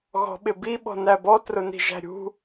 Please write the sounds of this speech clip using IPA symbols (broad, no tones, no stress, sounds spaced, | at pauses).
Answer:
ɣ ɔ̤ ɓ ɪ b i ɓ ɔ̤ n æ b ɔ t r ʊ n i̤ ʒ æ̤ ɾʲ ṳ